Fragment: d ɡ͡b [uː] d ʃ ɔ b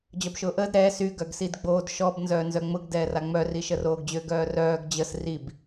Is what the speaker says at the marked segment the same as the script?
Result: no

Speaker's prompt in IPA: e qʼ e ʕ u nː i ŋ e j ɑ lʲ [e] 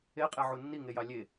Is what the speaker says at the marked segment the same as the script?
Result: yes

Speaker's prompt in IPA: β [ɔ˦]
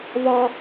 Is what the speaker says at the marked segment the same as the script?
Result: yes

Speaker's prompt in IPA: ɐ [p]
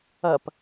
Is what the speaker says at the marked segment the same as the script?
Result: yes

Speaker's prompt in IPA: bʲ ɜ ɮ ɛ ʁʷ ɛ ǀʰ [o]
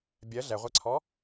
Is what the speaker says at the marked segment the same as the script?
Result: no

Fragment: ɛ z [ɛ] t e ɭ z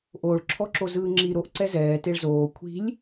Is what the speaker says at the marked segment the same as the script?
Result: no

